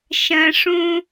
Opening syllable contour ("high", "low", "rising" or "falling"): high